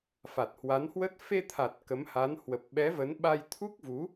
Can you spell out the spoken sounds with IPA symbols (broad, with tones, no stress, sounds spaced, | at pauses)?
f a˨˩ t̚ h w a˨˦ n h w ə˦˥ t̚ f e˧ t̪ʰ a˨˩ t̚ k ə˨˦ m h a˨˦ n h w ə˨˩ p̚ ɓ ɛ˨˦ v ə˨˦ n ɓ a˧ j t̪ʰ u˦˥ k̚ v u˨˦